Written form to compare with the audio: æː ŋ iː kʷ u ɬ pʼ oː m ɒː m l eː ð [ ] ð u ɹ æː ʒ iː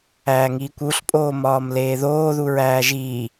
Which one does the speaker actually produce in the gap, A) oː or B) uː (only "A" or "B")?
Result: A